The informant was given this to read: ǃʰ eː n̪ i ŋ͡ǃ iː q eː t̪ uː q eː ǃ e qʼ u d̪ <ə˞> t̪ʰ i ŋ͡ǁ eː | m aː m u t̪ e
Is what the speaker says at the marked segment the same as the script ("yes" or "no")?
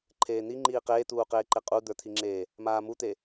yes